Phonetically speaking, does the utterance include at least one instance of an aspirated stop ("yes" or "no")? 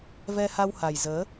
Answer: no